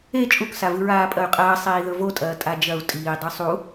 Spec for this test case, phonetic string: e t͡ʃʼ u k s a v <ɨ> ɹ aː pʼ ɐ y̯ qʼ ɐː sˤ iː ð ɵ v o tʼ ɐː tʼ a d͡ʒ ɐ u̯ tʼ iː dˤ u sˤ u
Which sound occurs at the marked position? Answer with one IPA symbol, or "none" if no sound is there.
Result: ɨ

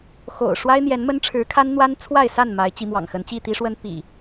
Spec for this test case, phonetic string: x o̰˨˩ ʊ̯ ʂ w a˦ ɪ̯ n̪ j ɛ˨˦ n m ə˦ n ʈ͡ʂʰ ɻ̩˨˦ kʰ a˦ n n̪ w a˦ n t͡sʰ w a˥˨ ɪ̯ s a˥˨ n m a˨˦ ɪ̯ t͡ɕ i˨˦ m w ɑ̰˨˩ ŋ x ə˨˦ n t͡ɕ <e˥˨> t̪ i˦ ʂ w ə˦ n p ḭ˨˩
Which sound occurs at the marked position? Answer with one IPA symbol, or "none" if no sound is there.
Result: i˥˨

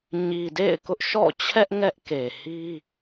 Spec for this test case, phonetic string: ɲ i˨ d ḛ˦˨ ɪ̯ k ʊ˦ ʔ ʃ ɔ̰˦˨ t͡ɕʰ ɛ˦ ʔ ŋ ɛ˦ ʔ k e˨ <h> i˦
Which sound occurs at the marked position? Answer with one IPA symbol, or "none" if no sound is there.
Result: h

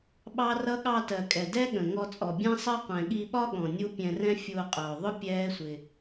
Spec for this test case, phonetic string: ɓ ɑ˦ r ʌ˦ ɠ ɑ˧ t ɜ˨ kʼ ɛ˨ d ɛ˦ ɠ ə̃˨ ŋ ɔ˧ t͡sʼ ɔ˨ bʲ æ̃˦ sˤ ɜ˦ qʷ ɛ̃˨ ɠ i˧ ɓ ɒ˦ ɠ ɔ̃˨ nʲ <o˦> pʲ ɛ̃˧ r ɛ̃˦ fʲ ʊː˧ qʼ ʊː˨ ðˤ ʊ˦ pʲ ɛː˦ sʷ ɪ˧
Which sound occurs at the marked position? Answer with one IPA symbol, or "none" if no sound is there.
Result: u˦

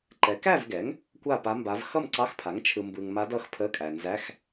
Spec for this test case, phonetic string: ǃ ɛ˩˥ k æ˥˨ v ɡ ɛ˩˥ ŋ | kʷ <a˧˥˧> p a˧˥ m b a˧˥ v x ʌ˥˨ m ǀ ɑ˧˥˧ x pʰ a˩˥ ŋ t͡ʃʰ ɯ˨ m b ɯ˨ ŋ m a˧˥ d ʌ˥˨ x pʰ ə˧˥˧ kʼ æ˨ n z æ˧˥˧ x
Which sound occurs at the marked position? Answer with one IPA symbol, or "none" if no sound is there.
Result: a˥˨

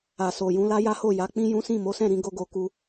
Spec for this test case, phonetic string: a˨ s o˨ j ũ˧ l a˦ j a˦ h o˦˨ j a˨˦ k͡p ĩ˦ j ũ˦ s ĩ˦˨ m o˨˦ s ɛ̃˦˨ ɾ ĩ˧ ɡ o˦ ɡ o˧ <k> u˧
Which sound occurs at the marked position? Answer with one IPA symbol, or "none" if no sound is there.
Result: k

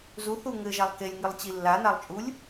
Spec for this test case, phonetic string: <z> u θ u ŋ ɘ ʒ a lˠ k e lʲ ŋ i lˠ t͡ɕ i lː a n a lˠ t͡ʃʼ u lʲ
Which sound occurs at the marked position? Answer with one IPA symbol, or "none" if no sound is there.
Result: z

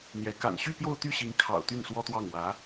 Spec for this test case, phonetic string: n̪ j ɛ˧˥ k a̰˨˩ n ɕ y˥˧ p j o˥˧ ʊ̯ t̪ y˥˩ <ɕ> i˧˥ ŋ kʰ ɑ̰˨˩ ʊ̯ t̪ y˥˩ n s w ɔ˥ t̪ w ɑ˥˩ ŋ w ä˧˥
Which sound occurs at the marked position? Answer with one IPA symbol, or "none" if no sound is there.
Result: ɕ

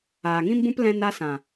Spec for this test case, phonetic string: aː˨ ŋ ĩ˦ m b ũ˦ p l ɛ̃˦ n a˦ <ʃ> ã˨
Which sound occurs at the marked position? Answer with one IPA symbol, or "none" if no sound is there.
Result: s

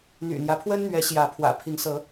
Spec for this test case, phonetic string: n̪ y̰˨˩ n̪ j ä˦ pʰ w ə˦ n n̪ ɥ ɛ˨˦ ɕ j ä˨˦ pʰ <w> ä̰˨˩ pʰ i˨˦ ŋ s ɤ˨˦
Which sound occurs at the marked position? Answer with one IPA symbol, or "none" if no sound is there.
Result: w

